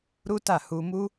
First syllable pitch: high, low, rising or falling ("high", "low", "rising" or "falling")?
high